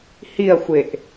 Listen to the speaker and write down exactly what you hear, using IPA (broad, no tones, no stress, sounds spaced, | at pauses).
h i ɐ̯ xʷ e ʔ